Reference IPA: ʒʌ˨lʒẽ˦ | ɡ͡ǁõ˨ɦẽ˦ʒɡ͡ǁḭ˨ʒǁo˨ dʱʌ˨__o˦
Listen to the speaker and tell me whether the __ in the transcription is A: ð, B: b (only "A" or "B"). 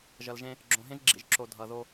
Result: A